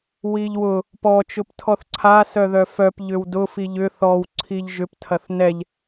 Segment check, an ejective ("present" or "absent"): absent